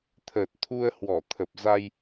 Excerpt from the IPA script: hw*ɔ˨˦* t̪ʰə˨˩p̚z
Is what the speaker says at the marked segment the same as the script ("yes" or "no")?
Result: no